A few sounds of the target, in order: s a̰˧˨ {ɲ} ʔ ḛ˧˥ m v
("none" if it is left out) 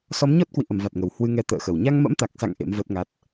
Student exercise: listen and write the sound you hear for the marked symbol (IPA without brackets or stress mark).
ŋ